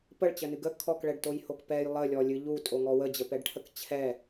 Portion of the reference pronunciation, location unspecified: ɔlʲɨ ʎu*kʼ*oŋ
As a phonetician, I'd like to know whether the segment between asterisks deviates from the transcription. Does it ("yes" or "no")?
yes